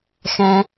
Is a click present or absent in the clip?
absent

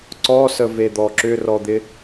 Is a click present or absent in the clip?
present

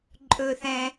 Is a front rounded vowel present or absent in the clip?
absent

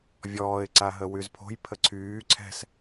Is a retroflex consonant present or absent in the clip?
absent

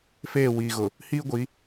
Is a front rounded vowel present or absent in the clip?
absent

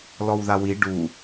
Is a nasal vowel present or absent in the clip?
absent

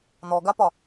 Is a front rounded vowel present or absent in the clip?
absent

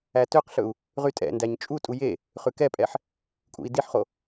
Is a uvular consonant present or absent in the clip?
present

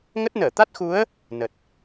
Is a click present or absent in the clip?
absent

